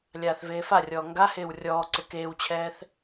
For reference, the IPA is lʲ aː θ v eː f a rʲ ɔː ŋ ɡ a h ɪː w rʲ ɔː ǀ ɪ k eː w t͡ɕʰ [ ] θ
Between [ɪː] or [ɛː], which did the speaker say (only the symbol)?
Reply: ɛː